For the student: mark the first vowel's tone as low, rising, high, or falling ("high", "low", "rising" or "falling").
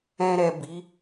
low